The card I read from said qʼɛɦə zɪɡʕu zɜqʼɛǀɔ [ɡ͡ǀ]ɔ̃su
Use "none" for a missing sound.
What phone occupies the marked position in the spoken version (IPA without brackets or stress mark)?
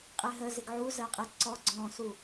ɡ͡ǀ